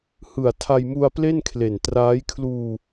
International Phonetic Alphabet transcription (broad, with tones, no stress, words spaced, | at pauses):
hɯ˨˩a̯ tʰa˧jmu˧a̯ple˥˩nkʰle˨˩n traː˦˥j kʰluː˧